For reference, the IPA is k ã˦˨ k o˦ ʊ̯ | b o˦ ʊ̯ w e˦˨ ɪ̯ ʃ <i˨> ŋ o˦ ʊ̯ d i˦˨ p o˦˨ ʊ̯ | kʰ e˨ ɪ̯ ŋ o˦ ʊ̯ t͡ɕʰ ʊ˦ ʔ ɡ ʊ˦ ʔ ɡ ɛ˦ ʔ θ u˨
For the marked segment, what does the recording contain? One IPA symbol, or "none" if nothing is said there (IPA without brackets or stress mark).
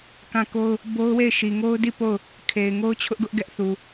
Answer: i˨